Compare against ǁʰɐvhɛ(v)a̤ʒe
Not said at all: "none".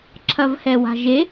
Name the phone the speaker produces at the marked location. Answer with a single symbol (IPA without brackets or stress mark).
w